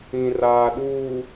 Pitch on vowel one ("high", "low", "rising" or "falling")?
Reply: low